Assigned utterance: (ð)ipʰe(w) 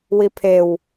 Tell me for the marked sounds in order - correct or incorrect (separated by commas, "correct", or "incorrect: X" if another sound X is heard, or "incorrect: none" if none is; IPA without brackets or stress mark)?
incorrect: w, correct